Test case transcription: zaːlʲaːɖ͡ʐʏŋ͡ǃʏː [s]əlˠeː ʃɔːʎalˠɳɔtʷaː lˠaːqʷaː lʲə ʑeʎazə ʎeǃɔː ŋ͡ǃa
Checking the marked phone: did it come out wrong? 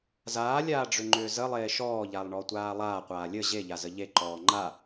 yes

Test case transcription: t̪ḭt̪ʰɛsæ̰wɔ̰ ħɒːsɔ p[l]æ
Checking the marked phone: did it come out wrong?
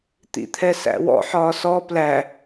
no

